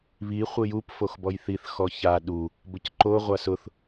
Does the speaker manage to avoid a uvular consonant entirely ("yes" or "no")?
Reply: no